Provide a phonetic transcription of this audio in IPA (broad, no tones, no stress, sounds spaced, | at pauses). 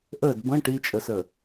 ʔ ə d b ə̃ ʈ i t͡ʃʼ ə s ə